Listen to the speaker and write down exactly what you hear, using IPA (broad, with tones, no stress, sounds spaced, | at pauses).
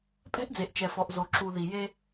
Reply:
pʼ ɛ̤˦ ʔ d͡z e˨ ʔ t͡ʃ ɛ˨ f ɔ˨ ʔ z o˨ ǁ u˨ ð i˨ j e˦